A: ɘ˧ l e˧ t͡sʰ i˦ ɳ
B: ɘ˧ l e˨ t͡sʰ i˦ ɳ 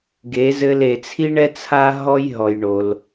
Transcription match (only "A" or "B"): B